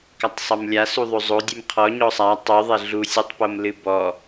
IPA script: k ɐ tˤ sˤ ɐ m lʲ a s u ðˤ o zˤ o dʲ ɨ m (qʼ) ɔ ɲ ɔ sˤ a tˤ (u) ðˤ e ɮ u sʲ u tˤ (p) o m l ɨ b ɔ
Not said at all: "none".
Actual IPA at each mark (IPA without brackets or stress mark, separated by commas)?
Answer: qʰ, u, p